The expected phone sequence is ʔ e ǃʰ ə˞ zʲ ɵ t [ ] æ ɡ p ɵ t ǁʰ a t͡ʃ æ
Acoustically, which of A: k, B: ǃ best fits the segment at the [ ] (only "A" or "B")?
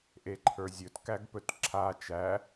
A